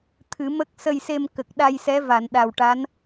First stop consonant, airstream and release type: aspirated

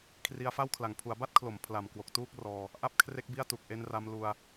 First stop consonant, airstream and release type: aspirated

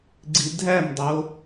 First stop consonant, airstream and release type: click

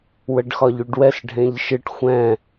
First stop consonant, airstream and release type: plain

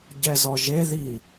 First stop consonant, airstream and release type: plain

